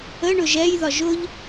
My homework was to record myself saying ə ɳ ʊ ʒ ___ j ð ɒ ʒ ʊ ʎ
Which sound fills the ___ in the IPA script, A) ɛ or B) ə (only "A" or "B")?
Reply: A